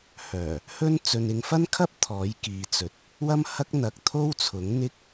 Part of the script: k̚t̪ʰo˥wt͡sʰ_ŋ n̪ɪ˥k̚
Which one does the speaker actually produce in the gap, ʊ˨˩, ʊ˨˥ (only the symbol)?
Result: ʊ˨˥